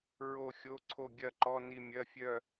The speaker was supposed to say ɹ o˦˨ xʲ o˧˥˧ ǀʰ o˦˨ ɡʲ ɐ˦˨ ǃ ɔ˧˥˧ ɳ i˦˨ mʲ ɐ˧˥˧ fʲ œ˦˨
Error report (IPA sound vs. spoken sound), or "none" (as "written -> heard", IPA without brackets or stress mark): ɳ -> n